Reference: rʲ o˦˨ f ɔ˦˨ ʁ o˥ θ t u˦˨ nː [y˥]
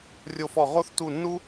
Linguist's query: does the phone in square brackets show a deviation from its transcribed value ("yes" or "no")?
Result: yes